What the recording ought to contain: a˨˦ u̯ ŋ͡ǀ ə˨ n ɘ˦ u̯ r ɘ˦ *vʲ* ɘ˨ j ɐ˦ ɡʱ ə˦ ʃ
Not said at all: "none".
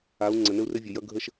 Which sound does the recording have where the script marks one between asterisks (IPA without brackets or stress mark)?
vʲ